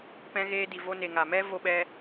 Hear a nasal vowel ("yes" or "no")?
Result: yes